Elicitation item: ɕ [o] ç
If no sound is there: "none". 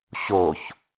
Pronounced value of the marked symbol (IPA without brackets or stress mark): o